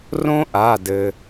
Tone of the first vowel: high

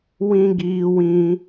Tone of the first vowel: high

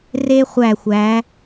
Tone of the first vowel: high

